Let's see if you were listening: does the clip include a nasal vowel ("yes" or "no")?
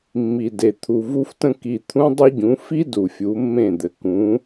yes